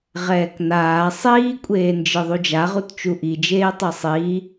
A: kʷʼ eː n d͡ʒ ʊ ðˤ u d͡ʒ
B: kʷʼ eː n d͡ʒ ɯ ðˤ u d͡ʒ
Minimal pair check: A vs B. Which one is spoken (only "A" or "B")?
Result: B